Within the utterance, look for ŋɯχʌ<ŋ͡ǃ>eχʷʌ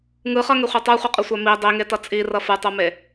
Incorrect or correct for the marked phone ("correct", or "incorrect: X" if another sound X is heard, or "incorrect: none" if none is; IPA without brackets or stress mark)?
incorrect: ŋ